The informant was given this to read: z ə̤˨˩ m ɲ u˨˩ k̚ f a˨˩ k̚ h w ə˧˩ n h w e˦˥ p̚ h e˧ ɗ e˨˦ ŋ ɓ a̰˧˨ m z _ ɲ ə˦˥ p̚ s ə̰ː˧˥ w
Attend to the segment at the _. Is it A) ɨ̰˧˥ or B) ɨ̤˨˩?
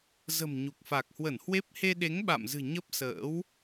B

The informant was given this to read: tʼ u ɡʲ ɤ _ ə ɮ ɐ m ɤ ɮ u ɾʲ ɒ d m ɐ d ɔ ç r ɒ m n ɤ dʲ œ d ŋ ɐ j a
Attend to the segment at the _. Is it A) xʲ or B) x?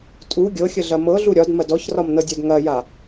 A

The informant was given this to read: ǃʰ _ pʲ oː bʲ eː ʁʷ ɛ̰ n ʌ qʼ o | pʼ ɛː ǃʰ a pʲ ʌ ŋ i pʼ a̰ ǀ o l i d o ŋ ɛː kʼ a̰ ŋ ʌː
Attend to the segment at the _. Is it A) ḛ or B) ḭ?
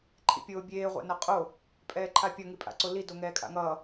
B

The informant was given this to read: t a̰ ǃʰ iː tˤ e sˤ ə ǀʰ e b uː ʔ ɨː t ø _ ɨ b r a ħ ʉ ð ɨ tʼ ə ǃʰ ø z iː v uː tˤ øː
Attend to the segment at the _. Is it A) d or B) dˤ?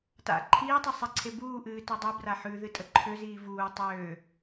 B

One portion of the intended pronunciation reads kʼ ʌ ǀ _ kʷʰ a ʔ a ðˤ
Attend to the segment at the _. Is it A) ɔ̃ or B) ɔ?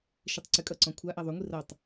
A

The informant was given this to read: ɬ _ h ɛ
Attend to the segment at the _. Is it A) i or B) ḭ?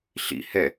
B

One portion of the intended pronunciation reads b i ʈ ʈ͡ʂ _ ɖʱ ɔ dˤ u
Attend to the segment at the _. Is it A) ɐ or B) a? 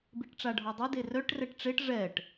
B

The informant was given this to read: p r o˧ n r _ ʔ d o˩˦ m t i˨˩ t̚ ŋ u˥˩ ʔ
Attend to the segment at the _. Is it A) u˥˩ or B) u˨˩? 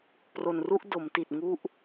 A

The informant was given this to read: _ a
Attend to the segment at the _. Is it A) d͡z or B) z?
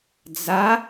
A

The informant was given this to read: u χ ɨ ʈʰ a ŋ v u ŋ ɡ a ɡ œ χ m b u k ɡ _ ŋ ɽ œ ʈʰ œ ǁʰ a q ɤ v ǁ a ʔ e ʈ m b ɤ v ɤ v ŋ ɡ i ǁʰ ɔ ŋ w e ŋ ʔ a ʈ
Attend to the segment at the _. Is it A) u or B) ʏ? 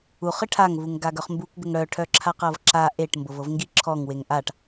B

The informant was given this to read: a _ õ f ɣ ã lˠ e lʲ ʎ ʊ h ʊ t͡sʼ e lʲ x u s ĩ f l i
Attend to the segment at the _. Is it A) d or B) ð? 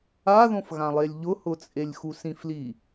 B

